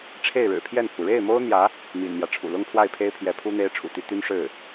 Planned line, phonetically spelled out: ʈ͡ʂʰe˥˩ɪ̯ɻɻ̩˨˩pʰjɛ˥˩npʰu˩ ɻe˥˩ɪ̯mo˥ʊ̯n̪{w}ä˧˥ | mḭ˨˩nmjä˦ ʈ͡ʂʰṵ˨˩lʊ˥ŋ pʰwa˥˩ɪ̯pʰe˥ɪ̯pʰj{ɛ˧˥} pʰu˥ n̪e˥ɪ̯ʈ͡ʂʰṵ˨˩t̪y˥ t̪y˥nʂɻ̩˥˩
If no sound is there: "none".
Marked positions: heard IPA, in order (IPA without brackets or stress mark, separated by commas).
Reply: j, ɛ˧˥